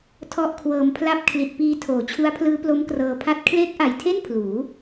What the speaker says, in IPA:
tʰ ɔ˦˥ ʔ kʰ w ɤː˧ m pʰ l a˥˩ p̚ kʰ l i˨˩ t̚ p iː˧ tʰ oː˩˦ t͡ɕʰ u˦˥ a̯ pʰ l ɯː˦˥ p l o˦˥ m k r ɤː˧ pʰ a˥˩ t̚ kʰ l eː˦˥ k̚ ʔ a˨˩ j tʰ e˥˩ n pʰ l uː˩˦

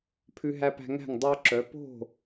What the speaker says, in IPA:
pʰ ʉ˧ ɦ æ˧ p æ̤˧ ŋ æ̤˥˩ ŋ dˤ œ˧ ǁ œ˩˧ p o̤˥˩

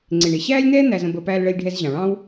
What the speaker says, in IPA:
ŋ͡ǀ ɪː˩ ɳ ɪ˩ ɕ æː˥ lʲ n̪ ɛː˥ n̪ æ˧ z ə̃˧ b ə˧ p æː˧ l ɭ əː˧ lʲ ɖʱ ɛ˧ z ʑ ɑ̃˩ ɭ ɑ̃˥ w

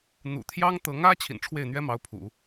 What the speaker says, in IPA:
n̪ ṵ˨˩ t̪ʰ j ɑ˥ ŋ t̪ ɤ˧˥ ŋ ä˥ t͡ɕʰ ḭ˨˩ n ʈ͡ʂʰ w e˥˩ ɪ̯ n̪ ɥ ɛ˥ m ɑ˧˥ ʊ̯ pʰ ṵ˨˩˦

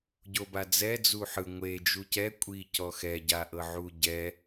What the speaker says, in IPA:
ɟ o b a d͡z ɛ d͡z u ħ ɯ ŋʷ e d͡ʒ u c ɛ kʷʼ i c ɔ x ɛ ɟ a ʔ ɤ ʕ u ɟ ɛ

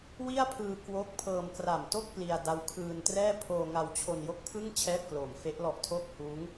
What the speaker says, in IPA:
w i˥˩ a̯ pʰ ɯː˧ k w o˦˥ k̚ pʰ ɤː˧ m k r a˨˩ m t o˥˩ k̚ p l i˧ a̯ d a˦˥ w kʰ ɯː˧ n t r ɛː˥˩ pʰ oː˧ ŋ a˧ w t͡ɕʰ o˧ n j o˦˥ k̚ pʰ ɯ˥˩ ŋ t͡ɕʰ ɛː˥˩ p̚ k l oː˨˩ m f e˦˥ ʔ l ɔ˦˥ ʔ tʰ oː˥˩ k̚ h uː˦˥ ŋ

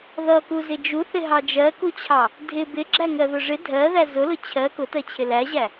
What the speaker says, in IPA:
ð ʌ k u z ɪ d͡ʒ u θ ɪ ɦ ɑ d͡ʒ ɜ k u t͡ɕʰ ɑ | dʱ ɪ b ɪ ɡ͡ǁ æ ŋ ɜ ð ʊ ʐ ɪ dʱ ɜ ð æ z ʊ l ʊ t͡ɕʰ ɜ k ʊ t ɜ t͡ɕʰ ɪ l æ ʑ æ

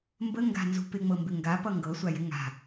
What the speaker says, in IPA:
m b ə ŋ ɡ a̤ n z ṳ p ɪ ŋ͡m ɤ m b ɪ ŋ ɡ a p ʌ ŋ ɡ ɤ sʷ a j ɪ ŋ a̤

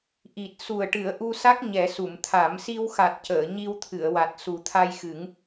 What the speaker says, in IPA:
ʔ i˨˩ t̚ s u˨˩ ə̯ ʈ ɨ˨˩˦ ə̯ ʔ u˧ s a˦˥ k̚ ɲ ɛ˨˩˦ s u˨˩˨ m t̪ʰ a˨˩˦ m s i˧ w x a˨˩ t̚ c əː˨˩˨ ɲ i˧ w t̪ʰ ɨ˨˩˨ ə̯ w a˨˩ t̚ s u˨˩ t̪ʰ a˧ j x ɨ˨˩˦ ŋ

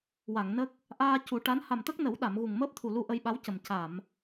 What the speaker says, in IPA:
w a˨˩˨ ŋ n ə˦˥ k̚ | ʔ aː˧ c u˨˩˦ ʈ a˧˥ n h a˨˩ m t̪ ə˦˥ k̚ n ə˨˩˦ w ɗ a˨˩˨ m ɣ u˨˩ ŋ m əː˦˥ p̚ t̪ʰ u˨˩ l u˧ ʔ ə˧ j ɓ a˧˥ w c ə˨˩ m c a˨˩˨ m

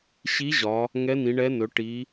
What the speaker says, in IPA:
ɕ i˧˥ ʑ ɒ˩˧ | ŋ ɛ˧˥ n ĩ˩˧ ɳ ɛ˧˥ n ɵ˩˧ ʈ i˩˧

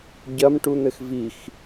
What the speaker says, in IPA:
ɟ ɐ m ʈ u n̪ ɘ x v i x

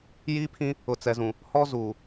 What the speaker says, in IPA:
j iː˦ pʰ ĩ˦ | ʊ˨ t͡s ɛ˨ z ũ˨ | h ɔ˦ z uː˨

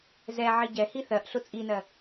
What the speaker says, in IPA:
z ɛ ʕ i ɟ ɛ h i θ ɜ ʔ ɬ ʊ t͡sʼ i n ɜ

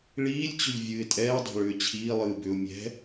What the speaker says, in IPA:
ɭ iː lʲ t͡ɕ ʏ ʎ vʲ ɨː ɪ̯ tʼ ɛː dˤ ɛ̤ ɭ ʏː t͡ɕʰ iː lˠ ɨː b ʏ ʊ̯ mʲ ɛ̤

